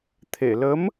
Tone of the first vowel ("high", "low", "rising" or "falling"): low